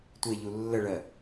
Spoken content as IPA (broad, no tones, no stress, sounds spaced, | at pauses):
tʷ e ʎ u lː ə ɭ ɜ